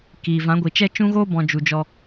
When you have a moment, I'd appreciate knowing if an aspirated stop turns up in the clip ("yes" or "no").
no